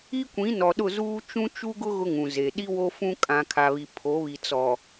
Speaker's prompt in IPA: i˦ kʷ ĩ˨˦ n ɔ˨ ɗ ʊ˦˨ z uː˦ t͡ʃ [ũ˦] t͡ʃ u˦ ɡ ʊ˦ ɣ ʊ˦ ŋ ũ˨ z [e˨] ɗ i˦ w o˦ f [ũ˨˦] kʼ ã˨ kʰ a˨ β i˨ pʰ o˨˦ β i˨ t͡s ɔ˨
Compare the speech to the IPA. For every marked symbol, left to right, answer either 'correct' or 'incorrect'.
correct, correct, incorrect: ũ˦

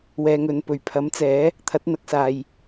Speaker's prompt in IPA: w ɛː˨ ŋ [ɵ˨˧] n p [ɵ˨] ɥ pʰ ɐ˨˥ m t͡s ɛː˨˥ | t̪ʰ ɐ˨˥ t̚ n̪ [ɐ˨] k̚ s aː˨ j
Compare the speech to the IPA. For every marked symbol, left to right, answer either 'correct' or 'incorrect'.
incorrect: ɵ˨, incorrect: ɵ˨˩, incorrect: ɐ˨˥

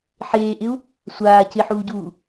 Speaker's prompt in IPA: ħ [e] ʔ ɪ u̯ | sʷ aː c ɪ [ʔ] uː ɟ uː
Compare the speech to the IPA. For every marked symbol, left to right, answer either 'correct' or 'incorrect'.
incorrect: eː, incorrect: ħ

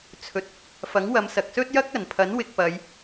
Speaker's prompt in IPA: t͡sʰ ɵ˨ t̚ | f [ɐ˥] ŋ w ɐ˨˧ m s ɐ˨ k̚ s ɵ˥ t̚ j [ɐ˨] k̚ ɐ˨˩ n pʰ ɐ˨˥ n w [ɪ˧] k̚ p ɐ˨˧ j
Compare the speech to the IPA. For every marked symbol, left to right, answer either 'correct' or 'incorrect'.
incorrect: ɐ˨˥, incorrect: ɐ˥, correct

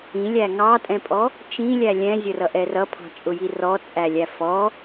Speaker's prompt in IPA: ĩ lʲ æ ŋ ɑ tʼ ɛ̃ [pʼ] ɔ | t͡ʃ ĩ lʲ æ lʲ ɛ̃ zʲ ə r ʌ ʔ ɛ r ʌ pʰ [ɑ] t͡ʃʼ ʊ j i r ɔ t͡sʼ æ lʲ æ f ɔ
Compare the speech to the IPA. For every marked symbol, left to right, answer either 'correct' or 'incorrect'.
correct, incorrect: ɑ̤

